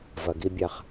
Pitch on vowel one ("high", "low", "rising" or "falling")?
low